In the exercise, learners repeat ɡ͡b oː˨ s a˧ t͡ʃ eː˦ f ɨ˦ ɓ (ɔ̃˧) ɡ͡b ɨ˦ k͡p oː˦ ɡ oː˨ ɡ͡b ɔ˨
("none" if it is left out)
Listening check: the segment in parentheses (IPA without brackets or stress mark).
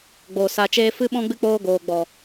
ɔ̃˦